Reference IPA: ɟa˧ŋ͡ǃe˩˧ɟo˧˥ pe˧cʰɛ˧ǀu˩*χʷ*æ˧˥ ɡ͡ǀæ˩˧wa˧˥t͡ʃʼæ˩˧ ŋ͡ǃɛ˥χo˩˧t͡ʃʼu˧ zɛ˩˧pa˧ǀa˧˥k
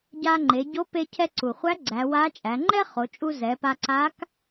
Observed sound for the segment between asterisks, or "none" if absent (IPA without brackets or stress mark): χʷ